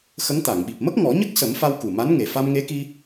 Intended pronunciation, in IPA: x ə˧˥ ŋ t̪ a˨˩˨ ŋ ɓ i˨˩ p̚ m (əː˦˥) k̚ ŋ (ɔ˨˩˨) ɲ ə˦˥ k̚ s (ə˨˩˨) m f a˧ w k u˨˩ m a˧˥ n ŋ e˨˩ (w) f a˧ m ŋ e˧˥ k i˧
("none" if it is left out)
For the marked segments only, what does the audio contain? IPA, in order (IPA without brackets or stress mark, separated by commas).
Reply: ə˦˥, ɔ˨˩˦, ə˨˩˦, none